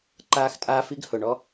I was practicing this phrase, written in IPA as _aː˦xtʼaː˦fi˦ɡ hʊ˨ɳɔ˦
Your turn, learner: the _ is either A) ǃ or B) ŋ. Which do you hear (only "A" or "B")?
A